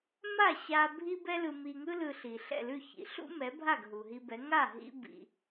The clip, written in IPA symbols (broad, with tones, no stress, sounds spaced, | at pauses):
m a˥˩ ɕ a˧ bʱ i˥ b ɛ˥ l ɯ˧ m i˧ ŋ ɯ˥ l ɯ˧ ɬ i˩ ɬ ɛ̰˥˩ l ʉ˥˩ ç ḭ˩˥ ɬ ṵ˥ m ɛ˩˥ bʱ a˥˩ ɡ ɦ u˩ ɦ i˧ b ɛ˩˥ ŋ a˥˩ ɦ ḭ˥ b ḭ˧